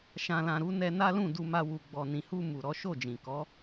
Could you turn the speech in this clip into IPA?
ʃã˨lã˨ ɾu˨˦nɛ˧ na˦lũ˦˨du˧ma˧ wu˨ɡ͡bɔ˨nĩ˨hu˧ mu˨ɾɔ˨˦ʃo˦˨d͡ʒĩ˨ kɔ˨˦

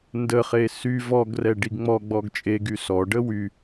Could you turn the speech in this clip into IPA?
ndəχe sy vɔɡrɛ ɖiɡŋ͡mɔ ɡ͡bɔɡt͡ʃʼeɡy sɔɖə wy

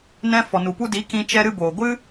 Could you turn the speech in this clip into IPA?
nɛ̃˧fɔ˨nu˨ pu˧di˨˦ kĩ˧ t͡ʃɛ˧ɾɨ˧boː˨ɡʷɨ˦

